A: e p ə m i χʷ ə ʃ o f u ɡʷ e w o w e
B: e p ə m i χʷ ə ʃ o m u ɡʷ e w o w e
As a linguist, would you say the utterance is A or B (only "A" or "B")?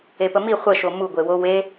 B